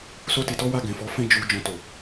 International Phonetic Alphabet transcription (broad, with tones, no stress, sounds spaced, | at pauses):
s o˦ t i˧ t ɔ˦ w a˦˨ ɡ ɛ̃˨ f ɔ˨˦ f ɛ̃˦ d͡ʒ u˧ d͡ʒ ɔ̃˧ t o˨